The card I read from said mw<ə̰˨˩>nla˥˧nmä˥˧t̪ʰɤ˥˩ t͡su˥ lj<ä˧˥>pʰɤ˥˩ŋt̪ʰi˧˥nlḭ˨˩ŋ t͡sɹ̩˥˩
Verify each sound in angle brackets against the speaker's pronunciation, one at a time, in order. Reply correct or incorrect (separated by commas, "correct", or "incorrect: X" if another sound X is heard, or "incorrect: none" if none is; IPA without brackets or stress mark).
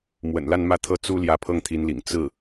correct, correct